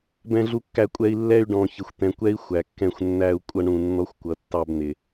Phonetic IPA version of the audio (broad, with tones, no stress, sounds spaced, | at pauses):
b ɛ̃˧ ɮ u˧ kː æ˧ kʷʼ ɛ˧ i̯ lː ɛ˧ y̯ ɖ ɔ̃˨ ç ɪ˨ xʷ t̪ ɛ̃˨ kʷ ɛ˦ i̯ xʷ æ˨ kː ɛ̃˦˨ xʷ nː æ˧ u̯ kʷʼ ʌ˧ ɳ ũ˨ nː ɔ˦ xʷ kʷ ʌ˨ tː ɑ˧ b n̪ ɪ˨